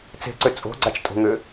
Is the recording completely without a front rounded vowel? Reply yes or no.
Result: no